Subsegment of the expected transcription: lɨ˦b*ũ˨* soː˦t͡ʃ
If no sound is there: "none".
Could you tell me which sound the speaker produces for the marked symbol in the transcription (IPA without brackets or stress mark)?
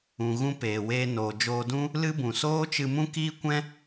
ũ˨